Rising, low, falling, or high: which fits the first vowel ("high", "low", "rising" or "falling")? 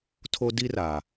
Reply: high